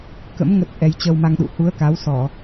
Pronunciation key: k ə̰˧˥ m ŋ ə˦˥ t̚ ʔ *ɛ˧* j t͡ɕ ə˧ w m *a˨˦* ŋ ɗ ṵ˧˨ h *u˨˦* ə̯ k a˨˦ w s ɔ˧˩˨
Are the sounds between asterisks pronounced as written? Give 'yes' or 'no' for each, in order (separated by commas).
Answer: yes, no, yes